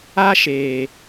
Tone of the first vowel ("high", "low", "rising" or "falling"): high